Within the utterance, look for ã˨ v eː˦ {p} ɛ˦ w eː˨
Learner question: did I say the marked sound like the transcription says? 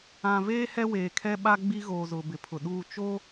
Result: no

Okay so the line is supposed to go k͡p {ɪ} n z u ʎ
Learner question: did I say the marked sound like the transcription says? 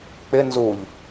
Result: yes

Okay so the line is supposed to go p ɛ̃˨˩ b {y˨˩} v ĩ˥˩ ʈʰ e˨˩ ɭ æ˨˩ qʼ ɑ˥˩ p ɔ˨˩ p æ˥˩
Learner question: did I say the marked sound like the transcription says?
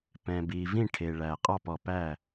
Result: no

